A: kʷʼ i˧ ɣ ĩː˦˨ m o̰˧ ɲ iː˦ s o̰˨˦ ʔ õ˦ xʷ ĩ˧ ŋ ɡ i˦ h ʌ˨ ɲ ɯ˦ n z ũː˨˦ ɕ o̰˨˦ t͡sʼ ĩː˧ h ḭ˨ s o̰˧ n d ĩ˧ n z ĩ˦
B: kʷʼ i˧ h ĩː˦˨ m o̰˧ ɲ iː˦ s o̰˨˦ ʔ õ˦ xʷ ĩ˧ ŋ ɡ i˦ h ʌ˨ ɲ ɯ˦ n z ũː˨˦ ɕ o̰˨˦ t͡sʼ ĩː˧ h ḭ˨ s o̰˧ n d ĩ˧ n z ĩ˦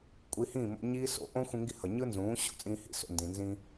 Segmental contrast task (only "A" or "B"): B